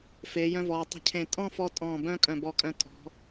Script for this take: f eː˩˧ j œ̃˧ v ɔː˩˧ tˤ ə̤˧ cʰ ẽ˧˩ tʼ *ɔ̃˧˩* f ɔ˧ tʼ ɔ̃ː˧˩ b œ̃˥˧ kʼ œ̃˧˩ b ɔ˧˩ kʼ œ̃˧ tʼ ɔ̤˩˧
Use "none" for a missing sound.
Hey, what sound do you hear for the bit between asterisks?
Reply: ɔ̃˥˧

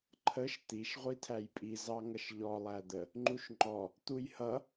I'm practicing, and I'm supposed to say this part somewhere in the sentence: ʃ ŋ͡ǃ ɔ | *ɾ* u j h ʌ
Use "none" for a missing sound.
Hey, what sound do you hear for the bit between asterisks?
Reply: t̪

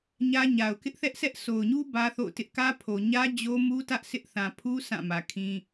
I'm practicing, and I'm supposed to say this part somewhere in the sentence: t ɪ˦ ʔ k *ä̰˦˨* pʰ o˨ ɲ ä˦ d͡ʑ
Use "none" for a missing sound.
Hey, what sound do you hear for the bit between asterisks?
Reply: ä˦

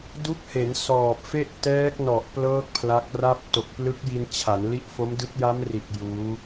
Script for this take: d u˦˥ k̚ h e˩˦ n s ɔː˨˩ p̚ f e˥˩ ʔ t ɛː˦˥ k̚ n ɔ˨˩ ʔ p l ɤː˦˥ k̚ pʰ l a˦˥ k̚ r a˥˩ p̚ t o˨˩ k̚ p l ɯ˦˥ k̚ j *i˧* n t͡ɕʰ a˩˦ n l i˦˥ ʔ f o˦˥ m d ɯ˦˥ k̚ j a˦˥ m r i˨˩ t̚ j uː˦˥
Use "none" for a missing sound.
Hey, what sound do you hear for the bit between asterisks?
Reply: i˧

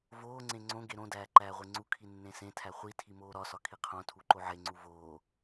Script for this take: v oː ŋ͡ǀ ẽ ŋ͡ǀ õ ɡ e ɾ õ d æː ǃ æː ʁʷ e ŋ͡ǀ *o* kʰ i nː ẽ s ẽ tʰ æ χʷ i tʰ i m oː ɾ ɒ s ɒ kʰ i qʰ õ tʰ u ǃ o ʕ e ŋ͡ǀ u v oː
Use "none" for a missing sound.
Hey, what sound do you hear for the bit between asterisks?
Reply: u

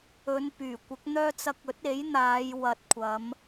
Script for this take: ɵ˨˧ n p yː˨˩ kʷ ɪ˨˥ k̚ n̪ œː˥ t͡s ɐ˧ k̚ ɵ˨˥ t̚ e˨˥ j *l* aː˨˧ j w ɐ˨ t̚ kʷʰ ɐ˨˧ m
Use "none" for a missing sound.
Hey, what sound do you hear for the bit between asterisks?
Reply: n̪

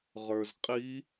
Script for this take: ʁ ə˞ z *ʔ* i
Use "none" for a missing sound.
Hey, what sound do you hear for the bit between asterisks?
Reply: qʼ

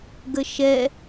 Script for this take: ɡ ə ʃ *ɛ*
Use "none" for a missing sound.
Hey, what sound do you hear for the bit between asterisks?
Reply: ɛ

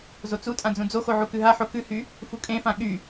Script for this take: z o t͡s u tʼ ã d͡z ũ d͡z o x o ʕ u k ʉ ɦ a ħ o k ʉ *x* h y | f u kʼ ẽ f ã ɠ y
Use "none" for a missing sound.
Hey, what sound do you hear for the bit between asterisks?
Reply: none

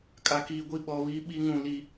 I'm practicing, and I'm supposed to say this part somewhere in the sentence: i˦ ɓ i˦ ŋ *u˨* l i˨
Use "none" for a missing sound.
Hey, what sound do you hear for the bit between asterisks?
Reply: ũ˨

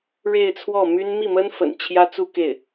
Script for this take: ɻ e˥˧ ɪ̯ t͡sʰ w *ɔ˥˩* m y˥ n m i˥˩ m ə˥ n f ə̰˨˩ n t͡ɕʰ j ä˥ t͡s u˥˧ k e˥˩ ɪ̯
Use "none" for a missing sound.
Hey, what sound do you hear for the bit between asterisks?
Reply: ɔ˥˩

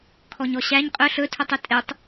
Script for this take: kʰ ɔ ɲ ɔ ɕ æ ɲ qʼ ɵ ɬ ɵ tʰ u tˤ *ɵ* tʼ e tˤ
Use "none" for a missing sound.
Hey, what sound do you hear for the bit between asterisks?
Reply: ɵ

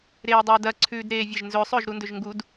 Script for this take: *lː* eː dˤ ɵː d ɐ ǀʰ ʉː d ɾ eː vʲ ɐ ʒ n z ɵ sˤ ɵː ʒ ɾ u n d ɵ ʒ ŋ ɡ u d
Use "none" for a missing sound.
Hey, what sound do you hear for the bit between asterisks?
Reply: ɾ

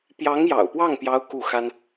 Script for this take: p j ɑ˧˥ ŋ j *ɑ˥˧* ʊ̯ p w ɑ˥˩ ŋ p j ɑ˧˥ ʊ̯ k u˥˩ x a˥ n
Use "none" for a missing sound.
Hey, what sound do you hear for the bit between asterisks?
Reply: ɑ̰˨˩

